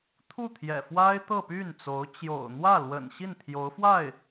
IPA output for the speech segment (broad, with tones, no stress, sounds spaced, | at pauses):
t̪ʰ u˥˩ t̪ʰ j ɛ̰˨˩ f w a˥ ɪ̯ t̪ ɤ˥˧ p y˥˩ n t͡s o˧˥ ʊ̯ t͡ɕ j o̰˨˩ ʊ̯ n̪ w ä˥˩ l w ə̰˨˩ n ɕ i˥˩ n t̪ʰ j o˧˥ ʊ̯ f w a˥˩ ɪ̯